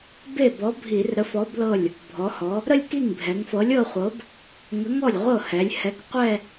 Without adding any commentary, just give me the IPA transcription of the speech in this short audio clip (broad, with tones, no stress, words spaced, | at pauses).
be˥˩bɔ˨˥bʱi˧˩˧r ɾə˨˥fɔ˨˥ blɤ˥˩lʲ | bʱɔ˩˧hɔ˩˧ | ɾə˥˧lʲki˥˩ŋbʱɛ˩˧ŋfɤ˨˥lʲ ɤ˥˧χʷɤ˨˥b | ŋə˨˥ ŋɔ˥˩lʲ ʁʷɤ˥˩ hɛ˩˧lʲhɛ˨˥k qʷɛ˥˧